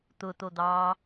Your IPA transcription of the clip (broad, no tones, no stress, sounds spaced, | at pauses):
t̪ ʊ t̪ o d̪ ɑː